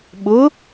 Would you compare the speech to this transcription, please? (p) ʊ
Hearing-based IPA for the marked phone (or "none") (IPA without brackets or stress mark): ɓ